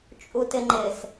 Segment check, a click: present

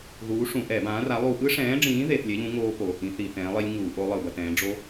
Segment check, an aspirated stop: absent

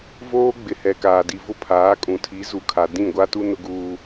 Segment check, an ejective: present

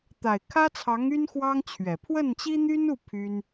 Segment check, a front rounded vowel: present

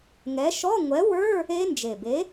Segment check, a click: absent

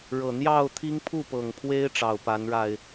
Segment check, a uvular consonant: absent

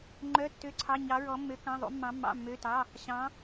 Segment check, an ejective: absent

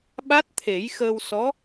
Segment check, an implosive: present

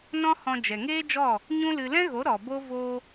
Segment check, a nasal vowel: present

